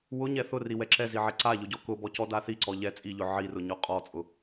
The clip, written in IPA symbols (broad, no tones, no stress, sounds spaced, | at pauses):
w ʊ ɲ ɛ θ ʊ r i w ɛ ǁ ɛ z i ʕ ɛ ǀ a ʎ ʊ ɟ ɔ k ʊ b ɔ c ɔ d a θ i ǀ ɔ ʎ ɛ t͡sʼ i ʎ ʊ ʕ i r ʊ ɲ ɔ qʼ ɔ t͡sʼ ʊ